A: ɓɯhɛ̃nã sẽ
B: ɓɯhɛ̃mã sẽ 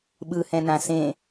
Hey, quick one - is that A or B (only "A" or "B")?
A